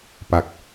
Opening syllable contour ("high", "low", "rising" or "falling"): low